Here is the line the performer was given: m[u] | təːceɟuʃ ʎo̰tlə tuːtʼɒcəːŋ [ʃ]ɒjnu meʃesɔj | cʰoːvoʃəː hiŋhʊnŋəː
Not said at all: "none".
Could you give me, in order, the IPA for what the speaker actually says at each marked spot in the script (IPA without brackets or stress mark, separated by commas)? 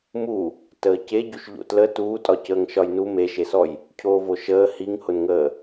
u, ʃ